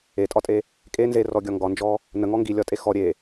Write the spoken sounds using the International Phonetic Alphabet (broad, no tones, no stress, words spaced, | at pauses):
etʼɒtʼe | kʼe nzerɔɡʲɒ ŋɡɒnd͡ʒɔ | nəŋɔ ŋɡilʲɒtʼe xɔ ɾʲe